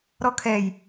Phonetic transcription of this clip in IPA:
ɾ ɔ kʰ ɛ j

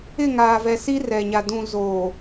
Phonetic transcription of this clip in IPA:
ɪ˦˨ ŋ aː˨ v ɛ˨ s i˦ r ɛ˨ ɲ a˨ d ũ˨ z oː˨

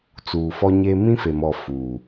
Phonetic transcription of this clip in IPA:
t͡s uː˨ f ɔ˦ ɲ e˦ m ĩ˦ f e˨ m ɔ˨ f uː˨

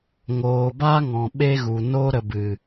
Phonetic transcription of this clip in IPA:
ŋ oː˨ b a˦ ŋ ɔ̃˨ ɓ e˦ ɣ u˨ n o˧ ɾ ə˧ b ɨ˨

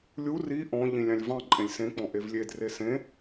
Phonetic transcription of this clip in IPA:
lʲ u r i ʔ ɔ̃ ʎ ĩ lʲ ɑ̃ lʲ v ɑ̃ ǃʼ ẽ lʲ s ẽ k͡p ɔ̃ ʔ e v lʲ e d r e s ẽ

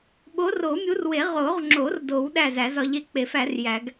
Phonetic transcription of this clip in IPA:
ɓ o˨˦ r o˨˩˦ mʲ u˨˦ r w e˨˩˦ ʁ o˨˩˦ ʁ ŋ͡ǁ o˨˩˦ r d o˨˩˦ w ɗ æ˥˨ z æ˨˩˦ z ɒ˨˦ ʎ e˨˦ k͡p e˨˩˦ f æ˨˩˦ r j æ˨˩˦ ɡ

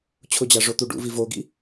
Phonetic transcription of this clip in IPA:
t͡ɕʰ ʊ d͡ʑ a ʐ o t̪ u ɖ ṵ v i v o ɡ ḭ

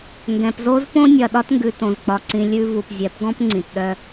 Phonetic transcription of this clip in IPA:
ŋ ɡ ɛ̃˨ p z o˦ z p õ˦ nʲ ɐ˨ ɗ ɒ˦ t ŋ ɡ ʉ˨ t õ˨ z k͡p ɒ˨ ǀ ĩ˨ lʲ ʉ˦ v u˨ p zʲ ɛ˨˦ p ɡ ɔ̃˦ p ŋ͡ǀ ĩ˨ t ɗ œ˦

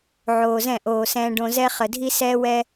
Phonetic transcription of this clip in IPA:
ʕ oː˧ z ɛ̃˦˨ ʔ oː˧ s ɛ̃ː˧ ɖ õ˧ z ɛ˦ χ ə˧ dʱ i˦ s ɛː˦ w ɛ˦

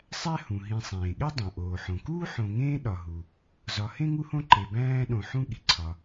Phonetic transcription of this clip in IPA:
sˤ æ˥ h ũ˩ ɦ ĩ˨ sˤ ẽː˩ ɠ e˥ dˤ õ˩ ʔ oː˩ ħ õ˩ k uː˥ ħ õ˨ ŋ ẽː˦ ɗ ɒ˨ ɦ u˨ | z ɒ˨ h ẽ˥ ŋ u˦ h õ˦ ǃ e˨ b æ̃ː˥ ɗ õ˨ ħ ũ˦ ɠ i˩ ǀʰ ɒ˨

